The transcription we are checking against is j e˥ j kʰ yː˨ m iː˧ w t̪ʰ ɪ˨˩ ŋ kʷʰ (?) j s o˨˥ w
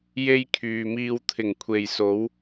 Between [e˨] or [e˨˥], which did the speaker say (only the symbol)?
e˨